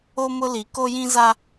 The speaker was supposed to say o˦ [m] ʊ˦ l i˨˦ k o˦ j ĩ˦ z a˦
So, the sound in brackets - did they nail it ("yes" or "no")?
yes